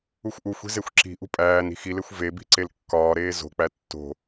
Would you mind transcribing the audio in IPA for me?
uxʷʔuxʷi̤ zexʷǁi̤ʔṳ pʼæːni̤ xilexʷ vebi̤ ǀelkːɒːɾeː zo̤k͡pæ tːo̤

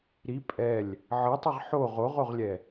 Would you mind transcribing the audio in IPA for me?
ɾi pʼɛlʲ | ʕɤtˤeʁ ħo ʁoʁoʁlʲɛ

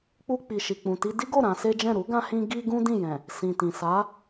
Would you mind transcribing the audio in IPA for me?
k͡pu˧k͡pi˨ʃi˨k͡pũ˨ ti˧di˦ɡo˦˨ ɾã˧se˦d͡ʒɛ̃˦˨ ɾu˨˦ɡã˧hĩ˧ ɡi˦ɡũ˦ dĩ˦˨jɛ̃˨ | sĩ˨tĩ˨ sa˨˦

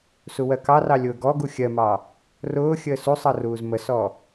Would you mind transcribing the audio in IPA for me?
suwɜkɑrɑ lʲʊːɡɔɡu xʲɜmɑ | rʊːxʲəː susˤʌ ruːzməsɔ

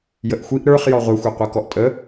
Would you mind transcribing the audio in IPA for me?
jəʔxʷiʔ ɾə˞χ jɔʁʷexʷeqʷa kɔʔtʼə

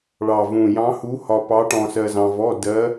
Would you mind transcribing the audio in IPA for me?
ɭɑ˨˩vũ˨˩jɑ̃˧˥hu˧˥ hɒ˧pɑ˧˥ʈɔ̃˧ sɜ˧zɑ̃˧vɔ˧˥˧ dɜ˧˥

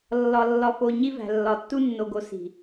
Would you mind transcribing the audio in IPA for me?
lːɒ˨ lːɒ˨fo˨ ɲi˦væ̤˨lːɒ˨ tːu˦nːo˨ɡo˨˦ si̤˨

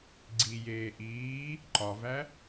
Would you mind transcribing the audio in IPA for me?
ɡ͡ǀi jeːʔiː | ǃɒvæ

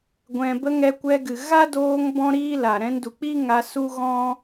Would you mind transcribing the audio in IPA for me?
ɡʷɛ̃˨bə˧ ŋɛ˧kʷɛ˧ɡɨ˨ ɣa˦doː˧ŋ bɔ̃˦ɾiː˦la˨ ɾɛ̃˧ndu˨k͡pi˦ŋa˧ su˦ɣɔ̃˦

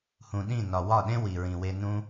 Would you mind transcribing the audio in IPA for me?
hũ˨ɗĩ˦˨ nɒ˨ wɒ˦˨ɗẽ˦ wi˨ɹĩ˨we˧ nũ˧

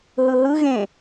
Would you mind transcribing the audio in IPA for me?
ɦɯɦɯɣẽ

